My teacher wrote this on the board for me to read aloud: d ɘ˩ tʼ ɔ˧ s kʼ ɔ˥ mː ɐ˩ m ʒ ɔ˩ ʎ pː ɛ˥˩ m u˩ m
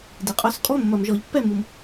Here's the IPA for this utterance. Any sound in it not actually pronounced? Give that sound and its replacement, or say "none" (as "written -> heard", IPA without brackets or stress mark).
tʼ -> qʼ